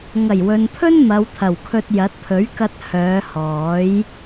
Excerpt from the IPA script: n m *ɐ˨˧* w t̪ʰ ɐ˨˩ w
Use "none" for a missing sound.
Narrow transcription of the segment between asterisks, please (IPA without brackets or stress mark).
ɐ˨˧